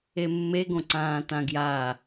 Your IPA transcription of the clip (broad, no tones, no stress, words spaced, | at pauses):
emːe ɡõǀãːtãɡja